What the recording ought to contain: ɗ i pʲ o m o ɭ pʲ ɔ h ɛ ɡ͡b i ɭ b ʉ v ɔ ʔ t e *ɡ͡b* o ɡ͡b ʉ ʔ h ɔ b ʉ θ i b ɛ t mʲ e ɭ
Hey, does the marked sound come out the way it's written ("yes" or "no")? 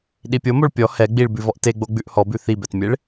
yes